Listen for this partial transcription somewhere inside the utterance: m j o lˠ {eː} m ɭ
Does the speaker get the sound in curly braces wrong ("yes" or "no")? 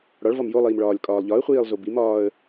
yes